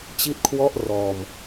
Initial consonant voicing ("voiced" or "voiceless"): voiceless